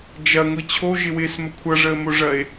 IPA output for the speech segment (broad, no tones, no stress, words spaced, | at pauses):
d͡ʒɐŋʷi t͡ɕʰoʒɪwɪːsmə kʷʰʌʐəːmoʐɐe̯